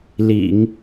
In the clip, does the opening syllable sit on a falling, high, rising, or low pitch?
low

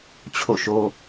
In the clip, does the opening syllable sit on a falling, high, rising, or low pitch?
falling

